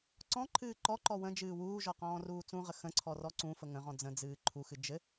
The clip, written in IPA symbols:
ǀ ɔ̃ ǃʰ ɨː ǃ ɔ ǃ ɔ w ə̃ d͡ʒ ɨː w uː ʒ ɔ q ɔ̃ː r uː t͡s ũ ʁ ə x ə̃ ǀʰ ɔ r ɔ ǀ ũ f ə ŋ ə̃ ʁ ɔ̃ d͡z ə̃ d͡z ɨː ǃʰ u x ɨ d͡ʒ ɘ

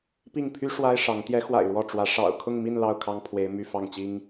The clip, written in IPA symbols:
p i˥˩ ŋ pʰ y˥ ʂ w a˥ ɪ̯ ʂ ɑ˧˥ ŋ t̪ j ɛ˧˥ x w a̰˨˩ ɪ̯ ɻ w ɔ˥˩ ʈ͡ʂ w ä˧˥ ʂ ɑ̰˨˩ ʊ̯ kʰ ʊ˥˧ ŋ m i˥˧ n l ɑ˥˩ ʊ̯ kʰ ɑ˥ ŋ pʰ w e˧˥ ɪ̯ m y˥˧ f ɑ˥˩ ŋ t͡ɕ i˥ ŋ

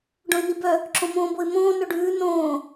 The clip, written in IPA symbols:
ɖ õ ɪ̯ n i b œ | ǁ õ m õː b o ɪ̯ m õː n œ ɖ ʉː n õː

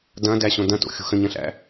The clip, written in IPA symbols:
d ɐ̃ d æ ɕ õ d ɐ̃ t o̰ xʲ ṳ x ə̃ ɲ ɐ̃ ɬ æ̰

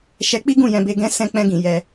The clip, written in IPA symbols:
ʃ ɛ˧ k͡p i˦ ɡ ũ˦˨ j ɛ̃˧ b e˧ ɡ ɛ̃˦ s ɛ̃˧ k͡p ɛ̃˧ ɡ ĩ˨ j ɛ˧

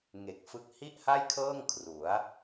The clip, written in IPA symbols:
ŋ e˨˩ k̚ f ɯ˦˥ k̚ h i˥˩ ʔ h a˥˩ j kʰ ɤː˥˩ ŋ kʰ r u˩˦ a̯

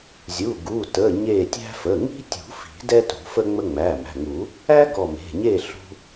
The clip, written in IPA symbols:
zʲ u˩˧˩ ɡ u˩˧˩ t ə˩˧˩ ɲ e˧˩ tʲ æ̤˦ f ə˩˧˩ ŋ i̤˦ tʲ ṳ˨˩˦ f i̤˨˩˦ d ɛ˦ t ṳ˨˩˦ f ə˦ ŋ͡m ə˦ ŋ͡m æ˩˧˩ m æ̤˩˧˩ ŋ u˨˩˦ | æ˦ ɡ ɔ˧˩ m e̤˩˧˩ ɲ e˥˨ ɬ ṳ˦

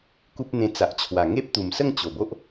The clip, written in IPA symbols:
k u˦ p̚ n̪ ẽ˧ t͡s a˨ ʔ t͡ɕʰ w a˨˩ ŋ e˦ p̚ t̪ u˨˩ m s ə˥˧ ŋ t͡ɕ o˨˩ b o˦ ʔ

